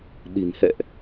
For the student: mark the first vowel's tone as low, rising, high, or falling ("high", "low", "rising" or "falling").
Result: low